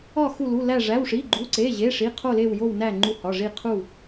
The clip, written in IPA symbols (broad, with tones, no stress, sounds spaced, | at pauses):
ɒ˥˧ x u˥˧ l u˧˥˧ l æ˥˧ ʐ æ˧˥˧ w ʂ i˧˥˧ ɡ͡ǃ u˧˥˧ ǀ e˧˥˧ ʑ e˧˥˧ ʂ i˧˥˧ qʰ o˥˧ l e˥˧ w j o˥˧ w n æ˥˧ ŋ͡ǃ u˥˧ h ɒ˧˥˧ ʐ i˥˧ qʰ u˥˧